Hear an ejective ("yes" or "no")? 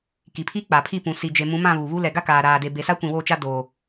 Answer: no